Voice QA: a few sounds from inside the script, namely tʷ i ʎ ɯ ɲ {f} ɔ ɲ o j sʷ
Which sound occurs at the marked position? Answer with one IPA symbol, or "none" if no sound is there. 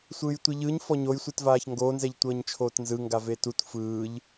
f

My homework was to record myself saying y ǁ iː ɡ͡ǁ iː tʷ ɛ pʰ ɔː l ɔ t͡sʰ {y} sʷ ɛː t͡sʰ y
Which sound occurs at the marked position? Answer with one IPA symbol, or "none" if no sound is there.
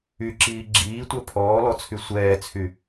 y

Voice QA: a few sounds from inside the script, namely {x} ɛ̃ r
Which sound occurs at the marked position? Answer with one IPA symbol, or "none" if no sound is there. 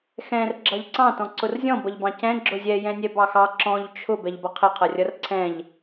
x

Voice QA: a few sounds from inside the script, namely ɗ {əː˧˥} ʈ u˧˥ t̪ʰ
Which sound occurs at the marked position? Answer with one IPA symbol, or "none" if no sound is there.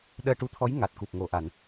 əː˧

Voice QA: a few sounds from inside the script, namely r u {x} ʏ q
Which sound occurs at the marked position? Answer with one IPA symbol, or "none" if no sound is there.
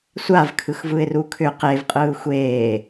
kʰ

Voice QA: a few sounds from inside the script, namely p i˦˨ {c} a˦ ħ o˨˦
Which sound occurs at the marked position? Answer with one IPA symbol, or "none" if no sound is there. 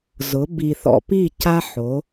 c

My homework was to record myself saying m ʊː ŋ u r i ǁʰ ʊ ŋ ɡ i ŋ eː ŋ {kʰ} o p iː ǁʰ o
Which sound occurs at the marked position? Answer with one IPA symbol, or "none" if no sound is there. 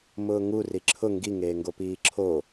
ɡ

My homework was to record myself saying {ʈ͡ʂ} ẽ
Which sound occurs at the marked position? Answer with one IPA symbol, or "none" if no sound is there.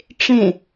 ʈ͡ʂ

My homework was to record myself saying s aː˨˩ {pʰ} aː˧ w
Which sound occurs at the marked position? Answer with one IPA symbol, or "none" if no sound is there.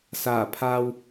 pʰ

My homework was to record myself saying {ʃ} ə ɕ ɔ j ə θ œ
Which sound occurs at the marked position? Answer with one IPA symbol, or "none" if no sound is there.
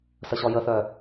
s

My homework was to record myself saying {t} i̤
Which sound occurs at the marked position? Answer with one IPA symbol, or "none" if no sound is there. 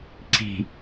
ǀ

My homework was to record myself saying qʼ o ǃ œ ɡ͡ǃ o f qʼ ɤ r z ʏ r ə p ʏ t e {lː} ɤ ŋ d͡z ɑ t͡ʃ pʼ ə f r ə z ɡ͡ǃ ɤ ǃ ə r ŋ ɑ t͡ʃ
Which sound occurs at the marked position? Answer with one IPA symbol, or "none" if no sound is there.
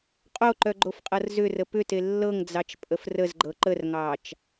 lː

